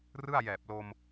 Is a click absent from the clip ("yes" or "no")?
yes